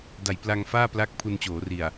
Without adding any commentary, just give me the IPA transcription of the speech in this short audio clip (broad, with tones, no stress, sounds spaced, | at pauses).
d a˨˩ j p l a˧ ŋ f aː˥˩ p l a˦˥ k̚ pʰ u˧ n t͡ɕ oː˩˦ r i˨˩ a̯